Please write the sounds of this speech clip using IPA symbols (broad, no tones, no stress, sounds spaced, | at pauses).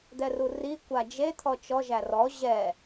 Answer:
d̪ ɛ r u r i kʷ a d͡ʒ e t̪ʰ ɔ t͡ʃ ɔ ʒ æ r ɔ ʑ ɛ